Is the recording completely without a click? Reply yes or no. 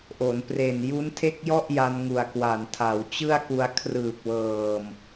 yes